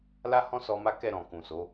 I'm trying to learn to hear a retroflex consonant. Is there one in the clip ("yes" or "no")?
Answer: no